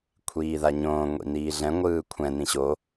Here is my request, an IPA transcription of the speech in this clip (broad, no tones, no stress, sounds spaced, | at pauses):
kʷʰ iː ð a ɲ õː ŋʷ ḭ n iː ɮ ɛ̃ ŋʷ ɯː kʷʰ ɛ̃ n ĩ ɕ o